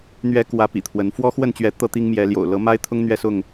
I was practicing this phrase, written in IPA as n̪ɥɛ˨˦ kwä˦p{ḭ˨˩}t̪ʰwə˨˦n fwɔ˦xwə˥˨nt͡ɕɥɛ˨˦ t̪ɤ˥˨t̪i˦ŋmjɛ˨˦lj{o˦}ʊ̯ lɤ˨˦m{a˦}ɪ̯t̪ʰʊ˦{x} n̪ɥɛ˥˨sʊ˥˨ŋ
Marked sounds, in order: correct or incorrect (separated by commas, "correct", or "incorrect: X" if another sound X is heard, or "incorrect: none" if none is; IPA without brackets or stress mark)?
correct, incorrect: o̰˨˩, correct, incorrect: ŋ